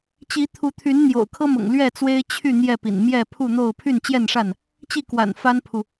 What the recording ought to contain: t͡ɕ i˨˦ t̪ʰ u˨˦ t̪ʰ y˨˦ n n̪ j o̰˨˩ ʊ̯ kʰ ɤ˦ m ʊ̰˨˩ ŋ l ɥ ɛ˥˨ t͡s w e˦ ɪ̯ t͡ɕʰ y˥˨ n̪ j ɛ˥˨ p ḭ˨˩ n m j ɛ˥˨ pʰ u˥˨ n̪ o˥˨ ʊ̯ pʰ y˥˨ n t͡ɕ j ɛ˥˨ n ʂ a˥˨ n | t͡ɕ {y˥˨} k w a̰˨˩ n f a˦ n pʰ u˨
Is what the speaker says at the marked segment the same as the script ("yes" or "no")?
no